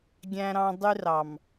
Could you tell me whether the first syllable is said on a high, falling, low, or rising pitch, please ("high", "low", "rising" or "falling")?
high